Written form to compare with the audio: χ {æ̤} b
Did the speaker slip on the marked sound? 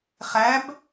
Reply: yes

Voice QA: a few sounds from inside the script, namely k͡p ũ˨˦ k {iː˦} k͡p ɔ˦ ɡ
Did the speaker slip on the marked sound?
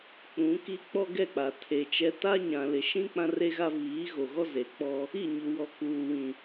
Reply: yes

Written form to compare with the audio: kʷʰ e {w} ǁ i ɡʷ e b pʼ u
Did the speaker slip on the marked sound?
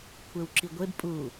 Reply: no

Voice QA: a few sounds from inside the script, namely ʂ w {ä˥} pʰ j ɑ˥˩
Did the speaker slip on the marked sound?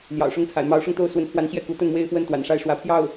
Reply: yes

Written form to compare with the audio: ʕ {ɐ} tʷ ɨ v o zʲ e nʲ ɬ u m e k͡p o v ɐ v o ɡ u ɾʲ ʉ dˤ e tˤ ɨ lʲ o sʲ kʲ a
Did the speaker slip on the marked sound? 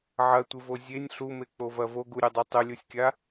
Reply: no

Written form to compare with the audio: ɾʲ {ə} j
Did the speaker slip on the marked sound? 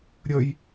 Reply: no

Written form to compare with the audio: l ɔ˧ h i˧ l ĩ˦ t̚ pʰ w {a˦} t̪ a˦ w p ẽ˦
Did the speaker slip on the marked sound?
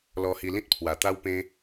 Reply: yes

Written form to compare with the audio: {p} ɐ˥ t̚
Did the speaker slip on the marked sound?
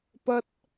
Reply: no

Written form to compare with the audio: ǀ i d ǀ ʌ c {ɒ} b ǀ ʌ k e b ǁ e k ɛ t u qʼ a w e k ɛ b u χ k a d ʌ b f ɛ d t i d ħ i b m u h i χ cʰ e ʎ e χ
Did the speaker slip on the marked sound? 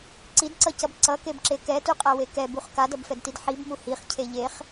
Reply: yes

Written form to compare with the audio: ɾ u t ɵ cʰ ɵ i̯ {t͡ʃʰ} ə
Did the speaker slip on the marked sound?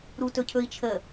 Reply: no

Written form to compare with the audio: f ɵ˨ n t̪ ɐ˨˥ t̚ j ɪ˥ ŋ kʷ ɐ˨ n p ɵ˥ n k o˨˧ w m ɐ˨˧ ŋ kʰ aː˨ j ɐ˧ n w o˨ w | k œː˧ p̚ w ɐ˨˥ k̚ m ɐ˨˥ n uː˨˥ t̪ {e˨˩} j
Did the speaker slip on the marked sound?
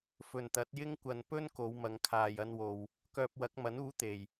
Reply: no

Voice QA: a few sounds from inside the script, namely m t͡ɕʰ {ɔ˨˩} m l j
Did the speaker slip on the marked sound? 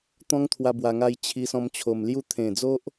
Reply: yes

